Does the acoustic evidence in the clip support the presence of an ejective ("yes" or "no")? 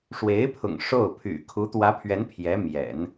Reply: no